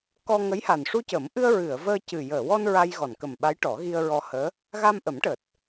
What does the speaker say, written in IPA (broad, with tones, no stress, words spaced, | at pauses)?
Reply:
kɔ˧ŋə˧˥jha˨˩n ʂu˧cəː˨˩˦mʔɨ˧ə̯ ɹɨ˨˩˨ə̯ vəː˧cɨ˨˩ jəː˨˩˨wɔ˧n ɹa˧jɣɔ˨˩˨nkə˨˩mɓa˧˥j ʈɔ˨˩˦ɣi˧ə̯ɹɔ˧həː˧˥ | ɣa˧mʔə˨˩˦mʈəː˨˩t̚